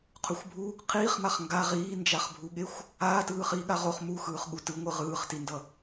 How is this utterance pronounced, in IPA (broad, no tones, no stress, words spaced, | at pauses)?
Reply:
qʰuxʷbʱu | qʰiːχmaχ ŋɡa ʁiːnd͡ʒaχbʱuɠexʷ | aːtɯː χiːɠaʁoχ muxɯːχɠu tɯŋʷɯ ʁɯːχtindʌ